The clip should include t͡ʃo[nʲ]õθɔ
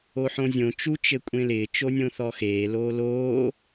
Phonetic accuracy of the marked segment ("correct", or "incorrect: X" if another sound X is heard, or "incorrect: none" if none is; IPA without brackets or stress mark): correct